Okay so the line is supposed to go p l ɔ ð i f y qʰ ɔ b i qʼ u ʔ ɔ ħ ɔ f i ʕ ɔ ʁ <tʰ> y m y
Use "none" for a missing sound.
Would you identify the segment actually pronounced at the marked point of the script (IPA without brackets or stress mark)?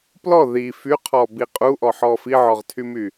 tʰ